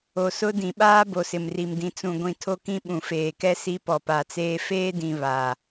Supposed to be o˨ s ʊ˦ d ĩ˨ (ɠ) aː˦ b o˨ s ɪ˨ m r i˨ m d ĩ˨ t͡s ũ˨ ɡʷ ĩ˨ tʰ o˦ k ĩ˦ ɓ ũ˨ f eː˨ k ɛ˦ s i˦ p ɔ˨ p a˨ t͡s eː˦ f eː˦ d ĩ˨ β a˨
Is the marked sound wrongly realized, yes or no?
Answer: yes